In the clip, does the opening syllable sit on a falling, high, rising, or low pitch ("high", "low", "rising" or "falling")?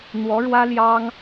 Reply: rising